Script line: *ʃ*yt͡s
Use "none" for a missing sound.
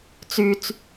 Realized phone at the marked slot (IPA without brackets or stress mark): t͡s